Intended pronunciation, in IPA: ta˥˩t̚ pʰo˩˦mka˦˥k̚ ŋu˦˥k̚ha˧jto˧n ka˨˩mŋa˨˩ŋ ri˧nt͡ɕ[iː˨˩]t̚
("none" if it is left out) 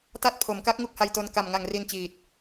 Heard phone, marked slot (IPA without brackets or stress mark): iː˨˩